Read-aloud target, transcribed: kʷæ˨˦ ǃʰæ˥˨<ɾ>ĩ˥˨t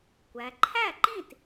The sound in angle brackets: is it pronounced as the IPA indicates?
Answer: no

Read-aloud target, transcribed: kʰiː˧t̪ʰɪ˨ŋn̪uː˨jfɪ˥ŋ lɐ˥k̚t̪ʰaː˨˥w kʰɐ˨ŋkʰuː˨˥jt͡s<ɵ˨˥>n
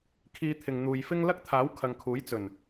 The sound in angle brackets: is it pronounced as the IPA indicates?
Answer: no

